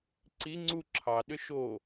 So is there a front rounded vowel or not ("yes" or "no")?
yes